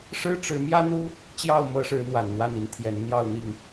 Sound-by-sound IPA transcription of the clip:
ʂɻ̩˦ʈ͡ʂɻ̩˨˦mjä˦n̪u˦ | t͡ɕjɑ˥˨ʊ̯mɤ˨˦ʂɻ̩˨˦ n̪wa˨˩nn̪wa˥˨ni˨˦nt̪ʰjɛ˨˦n n̪jɑ˥˨ʊ̯n̪i˥˨ŋ

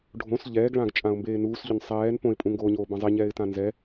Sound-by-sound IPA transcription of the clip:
ɖʱõs ʎɛːɡɭãɡ t͡ʃʼãʊ̯mbeːnuːsʎʊn sˤɛːn põɪ̯pʼũŋɡoːɲoː bãzˤeɲɛːɪ̯tã nzɛ

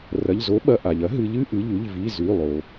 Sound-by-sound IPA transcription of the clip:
rɐ˩˧˩ʎzo˨˥ɓɐ˩˧˩ ʔa˩ʎɐ˨˥ɦɨ˩˧ʎ ɨ˥˨ʔɨ˩˧˩ʎʉ˩˧˩ʎvi˩˧˩ zʉ˩˧˩lˠo˩

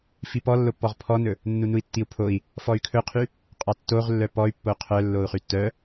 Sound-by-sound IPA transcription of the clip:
fipɔ lːopːɔʁpʰɔnɵ | nːunui̯tːiu̯pʰoi̯ | fɔy̯kʰɵqʰy | qʼɑtːoʁlːœ pɔy̯ pːoqʰœ lːou̯χytːœ

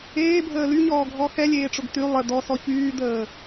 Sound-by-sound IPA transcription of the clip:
eːbʱəː lyɲɔːɡʱɔ xɛlʲeːʈ͡ʂʊɡ ty lˠə d̪ɔsɔ çyːd̪əː

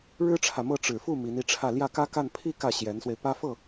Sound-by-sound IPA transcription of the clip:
ɻɻ̩˥ʈ͡ʂʰä˨mɤ˥˩ ʈ͡ʂɻ̩˨˩ fu˥˩ mi˧˥ni˥˧ʈ͡ʂʰä˥˧ ljä˥˩kä˥ka˥˧n pʰi˥˧ kä˥˩ ɕjɛ˧˥nswe˧ɪ̯pä˥ fɤ˥˩

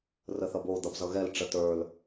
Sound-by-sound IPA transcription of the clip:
rəθʌbo d̪ʌbzʌɣɛl ʈ͡ʂətə˞l

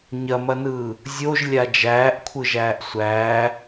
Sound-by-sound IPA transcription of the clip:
ɲɐmɐnɯː | zʲoʒlʲa d͡ʒæːʔkʷʰɯʒæːʔ sʷæː

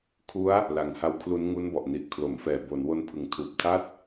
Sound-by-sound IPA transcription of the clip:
kʰu˦˥a̯ | la˨˩ŋha˦˥wkʰlu˦˥n ŋu˦˥nbɔ˨˩ʔ ni˨˩ʔkʰlo˩˦mfɛː˨˩ bo˩˦nwo˧n pʰɯ˨˩ŋtʰuː˨˩p̚tʰa˥˩t̚

